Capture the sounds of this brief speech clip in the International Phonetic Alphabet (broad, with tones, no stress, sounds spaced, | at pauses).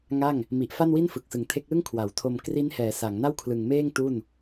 ŋ a˥˩ ŋ | m i˨˩ ʔ f a˥˩ n w i˥˩ n f ɯ˨˩ k̚ s ɯ˨˩ ŋ tʰ e˦˥ k̚ l ɯ˥˩ ŋ kʰ w a˩˦ w tʰ o˧ m k r i˦˥ n h ɛː˩˦ s a˩˦ ŋ n a˥˩ w kʰ l ɯ˨˩ ŋ m eː˥˩ ŋ t u˥˩ n